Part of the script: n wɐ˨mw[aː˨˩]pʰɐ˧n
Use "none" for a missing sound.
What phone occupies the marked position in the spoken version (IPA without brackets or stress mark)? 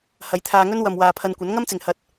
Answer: aː˨